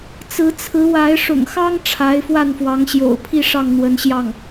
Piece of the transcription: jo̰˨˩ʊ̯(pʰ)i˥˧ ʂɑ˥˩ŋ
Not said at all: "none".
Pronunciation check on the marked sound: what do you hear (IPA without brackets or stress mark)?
pʰ